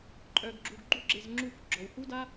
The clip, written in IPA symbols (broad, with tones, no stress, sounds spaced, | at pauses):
ǃʼ œ˧ ɡ ɡ͡ǁ u˧ ɡ ɡ͡ǃ u˦ ɡ͡ǁ e˧ z ŋ͡ǁ u˧ k ɡ͡ǁ ɔ˨ w h u˦ d a˦